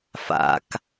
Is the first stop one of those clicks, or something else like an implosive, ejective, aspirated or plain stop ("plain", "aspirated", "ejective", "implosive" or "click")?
plain